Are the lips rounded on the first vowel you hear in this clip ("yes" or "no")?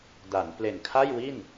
no